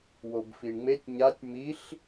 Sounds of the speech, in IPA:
wobfiɳŋ͡metʲ ɲatʲ miɬ

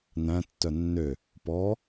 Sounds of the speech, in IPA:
næ̃tːœ nːø | pɔ

